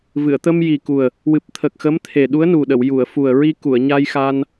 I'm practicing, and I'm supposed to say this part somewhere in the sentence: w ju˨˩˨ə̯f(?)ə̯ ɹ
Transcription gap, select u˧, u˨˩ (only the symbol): u˨˩